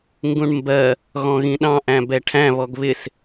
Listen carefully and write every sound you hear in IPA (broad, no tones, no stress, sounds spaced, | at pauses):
ŋ ɡ ũ ɳ m b ɜ | ɣ ɔ̃ ɣ ĩ ɗ ɑ̃ ʔ æ̃ b ɛ ʈʰ æ̃ β ɔ ɡ β ɪ s